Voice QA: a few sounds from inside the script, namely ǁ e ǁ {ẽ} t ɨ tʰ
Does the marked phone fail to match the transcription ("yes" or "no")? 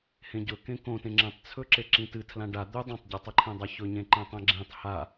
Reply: yes